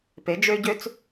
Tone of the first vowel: rising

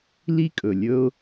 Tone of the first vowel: high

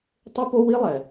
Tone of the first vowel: high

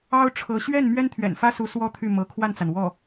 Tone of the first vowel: high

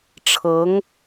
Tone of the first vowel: rising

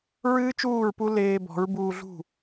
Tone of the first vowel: high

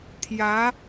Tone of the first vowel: rising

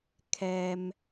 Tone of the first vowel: low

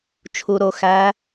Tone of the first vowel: low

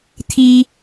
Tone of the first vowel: low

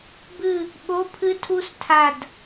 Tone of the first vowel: falling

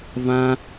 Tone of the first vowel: high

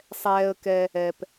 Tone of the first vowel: high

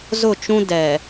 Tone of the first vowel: falling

